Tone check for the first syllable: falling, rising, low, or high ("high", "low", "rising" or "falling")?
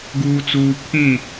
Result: low